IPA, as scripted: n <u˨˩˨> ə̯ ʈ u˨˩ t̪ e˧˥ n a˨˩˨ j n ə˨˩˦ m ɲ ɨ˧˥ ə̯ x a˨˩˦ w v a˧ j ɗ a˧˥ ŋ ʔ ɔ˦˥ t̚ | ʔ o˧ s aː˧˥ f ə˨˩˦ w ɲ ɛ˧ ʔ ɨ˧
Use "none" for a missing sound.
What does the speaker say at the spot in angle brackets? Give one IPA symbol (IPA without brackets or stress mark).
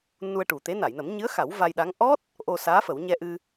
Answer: u˧